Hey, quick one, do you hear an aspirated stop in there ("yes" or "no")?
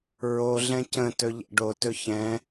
no